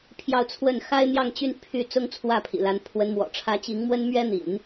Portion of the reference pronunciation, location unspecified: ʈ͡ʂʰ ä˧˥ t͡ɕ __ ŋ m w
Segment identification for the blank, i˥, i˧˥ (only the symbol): i˧˥